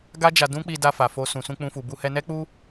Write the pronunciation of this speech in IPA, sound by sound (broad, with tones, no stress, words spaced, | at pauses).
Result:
ɡa˦d͡ʒa˧ dũ˦k͡pi˧da˧fa˨ fo˧ sũ˨sũ˧k͡pũ˧fu˨ bu˧hɛ˧nɛ˦k͡pu˦